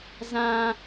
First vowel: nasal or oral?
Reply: nasal